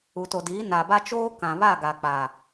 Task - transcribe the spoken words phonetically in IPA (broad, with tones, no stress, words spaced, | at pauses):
u˨to˨diː˨˦ na˨ba˦t͡ʃoː˦ kã˨βa˦˨ɡa˨ k͡pa˨